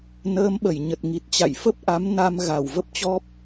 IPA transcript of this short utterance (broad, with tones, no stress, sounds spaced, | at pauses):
n əː˨˦ m ɓ ə˧˩ j ɲ ə˨˩ t̚ ŋ i˨˩ t̚ t͡ɕ a̰˧˨ j f ə˦˥ p̚ ʔ a˨˦ m n a˧ m ɣ a˧˩ w v ə˦˥ p̚ t͡ɕ ɔ˦˥ p̚